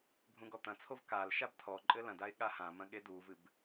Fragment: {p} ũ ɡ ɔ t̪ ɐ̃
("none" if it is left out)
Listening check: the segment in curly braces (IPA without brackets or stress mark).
bʱ